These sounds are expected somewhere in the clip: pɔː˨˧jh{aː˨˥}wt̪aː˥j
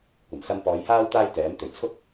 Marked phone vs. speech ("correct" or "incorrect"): incorrect